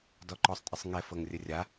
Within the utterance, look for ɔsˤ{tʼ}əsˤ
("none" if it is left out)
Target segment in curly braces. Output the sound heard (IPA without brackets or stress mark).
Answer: tʼ